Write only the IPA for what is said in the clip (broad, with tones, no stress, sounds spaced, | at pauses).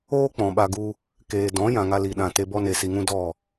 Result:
oː˦ k͡p ɔ̃˨ ɓ a˧ ɡ u˧ | k eː˨ d ɔ̃˨˦ j ã˨ ŋ a˧ l i˨ ɗ ã˨ t e˧ b ɔ˦ n e˧ s i˧ ŋ ũ˦ d ɔ˦˨